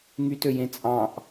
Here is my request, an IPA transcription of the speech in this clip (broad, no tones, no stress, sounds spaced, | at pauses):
ŋ y t ø j ẽ t͡sʼ ɑ̃ ʔ